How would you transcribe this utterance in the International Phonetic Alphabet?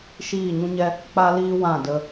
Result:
ʃ iː˦˨ ɲ ũ˦ ɲ ɛ˦ | k͡p a˦ l iː˦ w ã˦˨ d ə˧

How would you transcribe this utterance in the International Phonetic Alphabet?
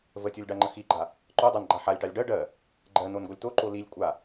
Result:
v ə tʲ o lʲ ɖ a ŋ͡ǃ ə x i ɡ͡ǃ a | ǃ o dˤ a n ɡ͡ǃ a ħ a lʲ ʈ a lʲ ɖ ɜ ɖ ɜ | ɡ͡ǃ ɜ n o n ɡ o lʲ t̪ o ǃ o l i lʲ kʷʼ a

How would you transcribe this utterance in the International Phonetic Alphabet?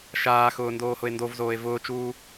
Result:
ʃ aː x ʊː n d oː h ʊ e̯ n d o v z oː e̯ v ʊː t͡ʃ uː

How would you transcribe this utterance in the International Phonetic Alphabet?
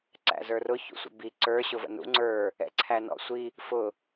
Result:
ǀ æ̰ z ə˞ r ʊ ç ṵ sʷ ə̰ b i ǀ ə˞ ɕ ʊ v ə̰ n ṵ ŋ͡ǀ ə˞ | ɛ̰ ǀʰ æ n ɔ̰ sʷ i | f ʊ

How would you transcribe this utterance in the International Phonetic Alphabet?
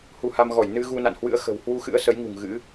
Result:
h u˧ h a˧ m ɣ ɔ˧˩ j n ɨ˧ ɣ u˧ n a̰˧˨ n h w ɨ̰˧˥ ə̯ x ə̤˨˩ w h w u˧ x ɨ̰˧˥ ə̯ s ə˨˦ j ŋ ṳ˨˩ ŋ ɣ ɨ̰˧˥

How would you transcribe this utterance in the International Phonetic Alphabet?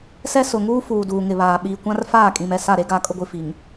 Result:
s ɛ˦ s ʊ˨ ŋ uː˦ f uː˨ d uː˨ ŋ ɪ˨ β aː˨ ɓ iː˨ kʷ ã˦ r f aː˦˨ kʼ ĩ˨ m ɛ˨ s a˦˨ ɾ e˦ ɡ aː˦ kʼ ʊ˦ ɡʷ i˨ f i˨ ŋ

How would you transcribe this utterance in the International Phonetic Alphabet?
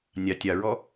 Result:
nʲ ɑ tʲ ɑ ɹ ɔ

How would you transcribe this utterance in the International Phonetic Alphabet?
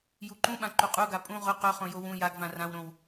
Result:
j u ǃ ũ ɓ ã ǃ u qʼ u ɡ a pʼ ũ ʁ ʊ q ɵ χ õ j o w ũ j a ɡ v ã r ã w ɾ õ w

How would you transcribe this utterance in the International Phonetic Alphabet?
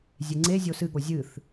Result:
zʲ e ŋ͡ǀ e zʲ o s ɨ ɠ o zʲ ɨ θ

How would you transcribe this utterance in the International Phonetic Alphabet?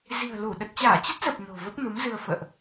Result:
z i̤˨˩ ə̯ l u˧˩ ɗ ə˨˩ t̚ t͡ɕ aː˧˩ t͡ɕ ə˦˥ t̚ z ə˨˩ p̚ n o̤˨˩ v ə˦˥ p̚ n u˨˦ m z ɨ˧ ə̯ f ə̰ː˧˨ ʔ

